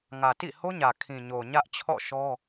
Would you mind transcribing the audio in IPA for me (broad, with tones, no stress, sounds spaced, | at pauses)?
ŋ ä˨ t ḭ˦˨ h o˦ ɲ ä˨ kʰ ĩ˨ ɲ o˨ ɲ ä˦ ʔ t͡ɕʰ ɔ̰˦˨ ʃ ɔ˦